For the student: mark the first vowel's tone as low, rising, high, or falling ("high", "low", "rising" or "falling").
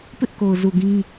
high